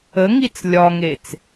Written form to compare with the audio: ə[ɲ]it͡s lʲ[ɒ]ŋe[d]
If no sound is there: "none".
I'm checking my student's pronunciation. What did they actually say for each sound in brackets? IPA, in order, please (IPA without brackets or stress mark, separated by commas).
ŋ, ɒ, t͡s